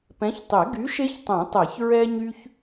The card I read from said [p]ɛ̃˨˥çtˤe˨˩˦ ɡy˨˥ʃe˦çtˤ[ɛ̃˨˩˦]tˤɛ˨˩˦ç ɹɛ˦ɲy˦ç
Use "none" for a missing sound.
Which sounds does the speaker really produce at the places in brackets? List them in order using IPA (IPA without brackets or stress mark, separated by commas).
p, ɛ̃˨˩˦